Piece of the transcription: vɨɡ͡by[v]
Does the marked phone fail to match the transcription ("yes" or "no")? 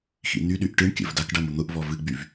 no